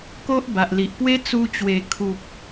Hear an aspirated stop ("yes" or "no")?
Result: yes